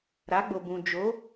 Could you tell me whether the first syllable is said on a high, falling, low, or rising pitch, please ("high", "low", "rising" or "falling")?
rising